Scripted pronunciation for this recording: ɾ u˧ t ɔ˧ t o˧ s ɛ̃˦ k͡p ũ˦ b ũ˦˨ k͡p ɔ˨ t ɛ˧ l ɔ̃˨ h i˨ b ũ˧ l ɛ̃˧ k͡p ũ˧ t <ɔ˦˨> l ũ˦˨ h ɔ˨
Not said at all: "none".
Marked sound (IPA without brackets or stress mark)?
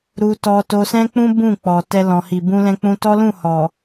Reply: ɔ˦